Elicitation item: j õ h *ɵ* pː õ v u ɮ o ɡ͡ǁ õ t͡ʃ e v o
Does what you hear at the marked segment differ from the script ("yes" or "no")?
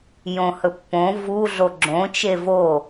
no